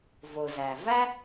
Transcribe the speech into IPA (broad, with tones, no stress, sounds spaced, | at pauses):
v o˩ z æ˩ v æ˥